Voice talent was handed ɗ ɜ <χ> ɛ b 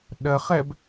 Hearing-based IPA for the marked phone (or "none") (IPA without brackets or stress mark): χ